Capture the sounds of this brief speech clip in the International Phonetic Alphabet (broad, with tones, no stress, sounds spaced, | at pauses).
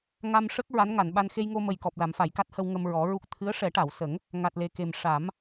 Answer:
ŋ a˧ m ʂ ə˦˥ k̚ ɹ a˧˥ n ŋ a˨˩˨ n ɓ a˧ n x e˧ j ŋ o˧ m ə˨˩ j k ɔ˨˩ p̚ l a˨˩˨ m f a˨˩˨ j k a˦˥ t̚ h ə˧ w ŋ ə˧ m ɹ ɔ˨˩˦ ɹ u˦˥ k̚ t̪ʰ ɨ˧˥ ə̯ ʂ ɛ˨˩˦ ʈ a˨˩˨ w s ə˨˩˦ ŋ | ŋ a˨˩ t̚ l e˨˩ k e˨˩ m ʂ a˨˩˦ m